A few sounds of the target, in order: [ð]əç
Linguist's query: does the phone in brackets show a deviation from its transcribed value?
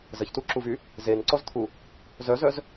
yes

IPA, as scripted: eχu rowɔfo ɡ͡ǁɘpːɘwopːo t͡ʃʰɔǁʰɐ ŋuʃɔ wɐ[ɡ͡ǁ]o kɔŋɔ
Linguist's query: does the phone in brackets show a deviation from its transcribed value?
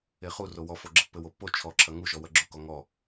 no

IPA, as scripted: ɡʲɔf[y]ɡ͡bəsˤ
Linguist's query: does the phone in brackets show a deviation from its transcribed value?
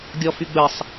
no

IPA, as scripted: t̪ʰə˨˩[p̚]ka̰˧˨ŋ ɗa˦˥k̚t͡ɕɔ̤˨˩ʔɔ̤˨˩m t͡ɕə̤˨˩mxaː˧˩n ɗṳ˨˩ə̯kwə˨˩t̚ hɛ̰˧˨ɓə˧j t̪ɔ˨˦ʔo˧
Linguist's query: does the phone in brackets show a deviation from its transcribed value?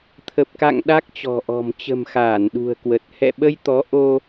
no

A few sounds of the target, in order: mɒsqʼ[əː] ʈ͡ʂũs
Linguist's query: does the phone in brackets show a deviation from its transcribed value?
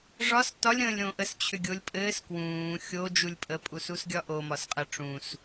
yes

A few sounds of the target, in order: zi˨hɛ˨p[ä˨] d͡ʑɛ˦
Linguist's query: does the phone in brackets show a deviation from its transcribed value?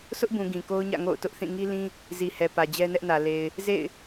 no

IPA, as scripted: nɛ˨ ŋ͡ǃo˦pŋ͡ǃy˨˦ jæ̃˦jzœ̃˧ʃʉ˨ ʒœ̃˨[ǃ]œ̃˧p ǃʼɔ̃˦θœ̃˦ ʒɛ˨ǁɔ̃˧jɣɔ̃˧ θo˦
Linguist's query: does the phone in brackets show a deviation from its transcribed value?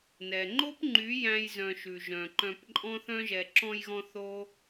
no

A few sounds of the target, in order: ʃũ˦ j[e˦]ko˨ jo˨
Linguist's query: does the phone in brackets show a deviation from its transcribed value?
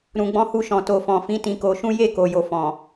yes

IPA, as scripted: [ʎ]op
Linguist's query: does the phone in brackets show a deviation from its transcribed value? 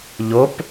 no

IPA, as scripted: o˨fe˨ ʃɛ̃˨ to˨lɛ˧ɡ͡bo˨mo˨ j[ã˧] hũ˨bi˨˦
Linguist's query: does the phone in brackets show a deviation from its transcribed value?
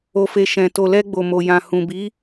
yes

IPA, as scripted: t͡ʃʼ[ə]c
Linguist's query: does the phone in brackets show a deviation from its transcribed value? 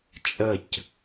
no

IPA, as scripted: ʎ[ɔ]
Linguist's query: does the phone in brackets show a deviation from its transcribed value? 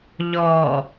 no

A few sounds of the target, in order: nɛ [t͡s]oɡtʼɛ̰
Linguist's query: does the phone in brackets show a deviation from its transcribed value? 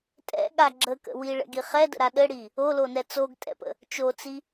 no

